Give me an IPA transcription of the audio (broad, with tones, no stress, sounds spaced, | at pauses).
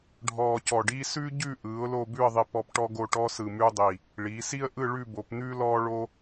ɖʱ ɔː˧ c ɔ˧˩ ɖ iː˥ s ʉ˥ ɟ ʉ˥˧ ʔ ɯː˩˧ ʊ̯ l o˥˧ b ʉ˥˧ ə̯ ðˤ i˧ p ɔ˧ p ʈ ɔ˥ ɡ o˥˧ ʈ ɔ˥ s ɯ˧˩ m ʉː˥ dˤ i˧˩ | ɭ iː˩˧ s i˥ ə̯ ʔ ɯ˥˧ ɭ ʉ˥˧ b o˩˧ p n̪ ʉː˥ l ɔː˥ ɭ o˥